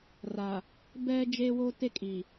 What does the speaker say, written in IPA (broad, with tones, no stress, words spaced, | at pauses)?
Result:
ra˨ | bɛ˦ d͡ʒe˦wo˦ te˦kʼi˨